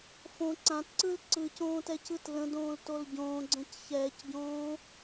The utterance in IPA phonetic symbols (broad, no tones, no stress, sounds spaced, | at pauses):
f õ ǀ ã t ǀ ɯ l ǀ ɯ c õː t ɛ c ɯ t l ə̃ d õː l t o l ɟ õː ɡ͡ǀ ə̃ c ç ɛː c ɟ õː